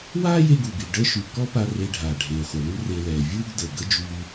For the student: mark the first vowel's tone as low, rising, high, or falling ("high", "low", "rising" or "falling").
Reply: high